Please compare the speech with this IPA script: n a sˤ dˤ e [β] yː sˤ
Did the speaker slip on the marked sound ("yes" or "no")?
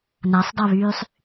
no